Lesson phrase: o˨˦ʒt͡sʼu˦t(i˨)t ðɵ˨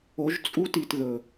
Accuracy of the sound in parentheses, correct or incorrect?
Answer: correct